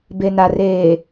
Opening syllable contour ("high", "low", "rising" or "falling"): low